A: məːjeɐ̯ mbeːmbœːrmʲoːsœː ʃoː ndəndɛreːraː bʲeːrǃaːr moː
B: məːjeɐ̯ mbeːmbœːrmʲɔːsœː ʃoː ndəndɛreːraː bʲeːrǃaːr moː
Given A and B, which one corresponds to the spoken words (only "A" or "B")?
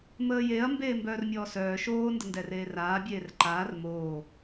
B